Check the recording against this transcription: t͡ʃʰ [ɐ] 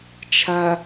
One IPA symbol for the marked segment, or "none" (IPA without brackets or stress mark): ɐ